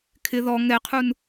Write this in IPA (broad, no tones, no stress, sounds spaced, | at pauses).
kʰ ɪ ð ɔ ŋ ɛ qʰ u n